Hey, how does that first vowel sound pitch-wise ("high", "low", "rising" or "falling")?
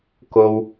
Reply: high